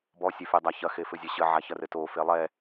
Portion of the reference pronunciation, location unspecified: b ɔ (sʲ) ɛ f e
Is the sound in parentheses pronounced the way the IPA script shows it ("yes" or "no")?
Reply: yes